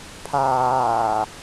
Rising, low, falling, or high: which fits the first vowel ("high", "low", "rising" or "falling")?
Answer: low